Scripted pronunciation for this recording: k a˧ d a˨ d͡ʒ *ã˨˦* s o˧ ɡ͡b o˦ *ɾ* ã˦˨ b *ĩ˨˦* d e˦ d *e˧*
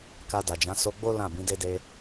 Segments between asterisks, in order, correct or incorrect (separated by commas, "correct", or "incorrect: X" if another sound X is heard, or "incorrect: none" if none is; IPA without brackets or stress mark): correct, incorrect: l, correct, correct